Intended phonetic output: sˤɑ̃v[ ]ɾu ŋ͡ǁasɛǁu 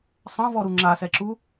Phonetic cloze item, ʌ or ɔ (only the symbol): ɔ